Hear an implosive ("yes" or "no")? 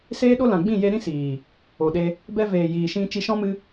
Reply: yes